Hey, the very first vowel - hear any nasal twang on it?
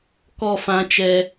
no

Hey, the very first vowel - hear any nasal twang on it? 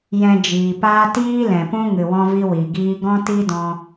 yes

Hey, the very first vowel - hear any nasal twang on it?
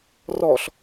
no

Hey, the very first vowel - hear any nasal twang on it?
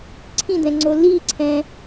yes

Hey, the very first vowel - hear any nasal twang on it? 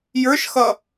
no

